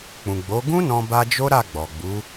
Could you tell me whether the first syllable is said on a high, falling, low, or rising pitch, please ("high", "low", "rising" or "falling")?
low